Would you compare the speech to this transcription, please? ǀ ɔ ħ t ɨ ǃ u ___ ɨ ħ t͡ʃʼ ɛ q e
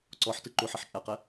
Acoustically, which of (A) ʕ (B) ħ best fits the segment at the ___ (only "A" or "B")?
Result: B